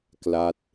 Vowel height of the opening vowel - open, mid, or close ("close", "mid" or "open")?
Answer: open